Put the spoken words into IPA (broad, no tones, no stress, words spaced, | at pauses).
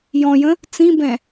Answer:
jɔ̃jə̃ | t͡sĩbɛ̃